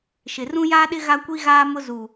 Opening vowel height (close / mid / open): close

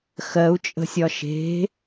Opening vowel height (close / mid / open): mid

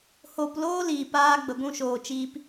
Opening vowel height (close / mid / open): mid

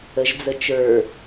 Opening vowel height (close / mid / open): mid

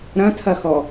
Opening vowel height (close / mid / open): open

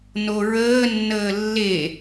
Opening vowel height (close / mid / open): mid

